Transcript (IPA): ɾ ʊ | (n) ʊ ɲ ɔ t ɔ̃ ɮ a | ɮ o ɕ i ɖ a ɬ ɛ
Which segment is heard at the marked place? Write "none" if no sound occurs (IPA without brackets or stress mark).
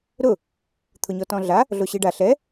t̪ʰ